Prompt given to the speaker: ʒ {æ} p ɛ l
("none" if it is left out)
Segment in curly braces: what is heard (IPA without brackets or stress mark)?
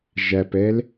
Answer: æ